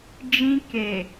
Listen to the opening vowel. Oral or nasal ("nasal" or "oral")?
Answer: nasal